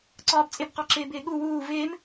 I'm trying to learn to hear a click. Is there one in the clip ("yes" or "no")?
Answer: yes